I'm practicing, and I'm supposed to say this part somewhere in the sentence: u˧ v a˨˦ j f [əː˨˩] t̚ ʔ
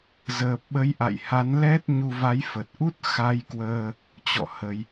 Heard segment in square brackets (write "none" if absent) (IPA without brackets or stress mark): ə˨˩